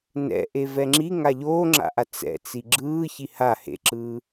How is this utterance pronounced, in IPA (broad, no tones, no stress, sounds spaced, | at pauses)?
n ɛ̰ ʔ e v ɛ ŋ͡ǁ i ŋ a ʎ oː ŋ͡ǁ a̰ ʔ a t͡s ɛ̰ t͡s i ɡ͡ǁ ɯː ç i h a h ḛ ǁ ɯː